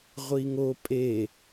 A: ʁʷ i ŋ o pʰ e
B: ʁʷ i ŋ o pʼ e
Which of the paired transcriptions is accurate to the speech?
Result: B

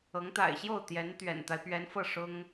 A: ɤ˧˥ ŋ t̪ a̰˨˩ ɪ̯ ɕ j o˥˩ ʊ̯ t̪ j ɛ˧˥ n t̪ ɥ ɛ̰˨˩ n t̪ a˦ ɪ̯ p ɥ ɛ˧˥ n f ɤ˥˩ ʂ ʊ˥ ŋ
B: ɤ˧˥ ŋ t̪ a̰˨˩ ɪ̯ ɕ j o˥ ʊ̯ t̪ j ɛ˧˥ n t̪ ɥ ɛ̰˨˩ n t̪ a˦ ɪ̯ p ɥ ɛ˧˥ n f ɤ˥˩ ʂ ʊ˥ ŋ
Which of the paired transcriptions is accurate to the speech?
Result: A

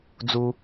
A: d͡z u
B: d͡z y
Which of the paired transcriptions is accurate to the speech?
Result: A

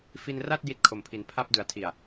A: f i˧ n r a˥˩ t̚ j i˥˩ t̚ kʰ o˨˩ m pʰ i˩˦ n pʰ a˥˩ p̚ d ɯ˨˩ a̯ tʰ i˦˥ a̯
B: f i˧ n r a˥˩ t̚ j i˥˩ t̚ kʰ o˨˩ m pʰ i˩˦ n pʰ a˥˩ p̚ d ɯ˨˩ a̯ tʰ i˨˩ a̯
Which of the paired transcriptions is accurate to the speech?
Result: B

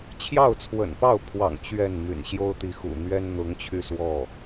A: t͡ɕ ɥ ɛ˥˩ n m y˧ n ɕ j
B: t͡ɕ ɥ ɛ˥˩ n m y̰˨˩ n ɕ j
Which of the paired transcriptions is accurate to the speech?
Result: B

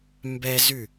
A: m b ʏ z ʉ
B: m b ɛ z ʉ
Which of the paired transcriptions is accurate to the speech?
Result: B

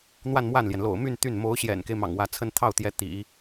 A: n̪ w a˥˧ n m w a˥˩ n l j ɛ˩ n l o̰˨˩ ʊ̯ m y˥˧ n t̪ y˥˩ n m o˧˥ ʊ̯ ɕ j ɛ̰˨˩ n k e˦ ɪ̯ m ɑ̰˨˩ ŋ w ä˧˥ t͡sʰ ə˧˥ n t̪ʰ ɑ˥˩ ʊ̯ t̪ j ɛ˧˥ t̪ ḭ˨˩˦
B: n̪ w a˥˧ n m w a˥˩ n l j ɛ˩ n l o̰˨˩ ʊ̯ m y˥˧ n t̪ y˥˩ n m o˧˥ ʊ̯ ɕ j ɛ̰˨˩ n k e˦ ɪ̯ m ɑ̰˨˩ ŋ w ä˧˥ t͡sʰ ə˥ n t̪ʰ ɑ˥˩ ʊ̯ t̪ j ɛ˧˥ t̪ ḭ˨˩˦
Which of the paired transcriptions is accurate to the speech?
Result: B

